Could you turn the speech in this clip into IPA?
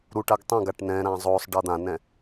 ɾ u ʈ a ɡ tˤ ɛ̃ ɡ a ʈ n ɛ̃ ɾ ã zˤ o sˤ ɖ ʌ d̪ ã n ɛ̃

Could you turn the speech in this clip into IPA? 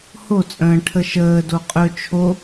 h o t͡sʼ ə̃ː ʈʰ ə ʃ əː d o qʼ ɵ t͡ʃʰ o

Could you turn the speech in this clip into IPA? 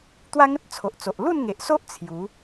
t̪ w a˦ ŋ ə˦ t̚ t͡sʰ o˨ ʔ t͡s o˨ ʔ l u˥˧ n ŋ e˨ ʔ s o˦ ʔ t͡sʰ j u˨˦

